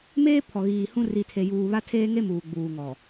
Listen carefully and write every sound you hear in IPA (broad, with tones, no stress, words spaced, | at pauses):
meː˦ pʰɔ˨ɣiː˨hũ˦ ri˨tʰe˨juː˨ βa˦tʰeː˦ŋe˦ muː˨ɡ͡buː˨ŋɔ˨